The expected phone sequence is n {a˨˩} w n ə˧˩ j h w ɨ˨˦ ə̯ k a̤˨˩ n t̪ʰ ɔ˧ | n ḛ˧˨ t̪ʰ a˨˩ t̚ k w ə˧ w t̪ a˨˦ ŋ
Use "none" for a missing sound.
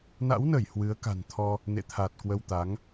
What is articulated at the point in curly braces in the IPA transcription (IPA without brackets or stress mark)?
a̰˧˥